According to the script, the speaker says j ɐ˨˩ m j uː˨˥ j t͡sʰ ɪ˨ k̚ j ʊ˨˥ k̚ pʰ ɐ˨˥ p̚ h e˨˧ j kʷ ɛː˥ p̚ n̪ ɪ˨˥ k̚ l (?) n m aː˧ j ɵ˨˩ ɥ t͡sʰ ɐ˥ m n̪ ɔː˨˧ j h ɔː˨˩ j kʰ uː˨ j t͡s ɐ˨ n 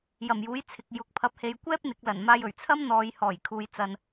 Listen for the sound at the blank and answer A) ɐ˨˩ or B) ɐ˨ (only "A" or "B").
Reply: A